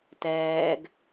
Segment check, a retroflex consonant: absent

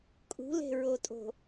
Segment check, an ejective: present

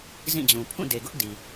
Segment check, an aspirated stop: present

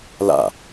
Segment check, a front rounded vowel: absent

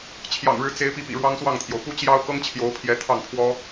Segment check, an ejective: absent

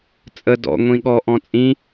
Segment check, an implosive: present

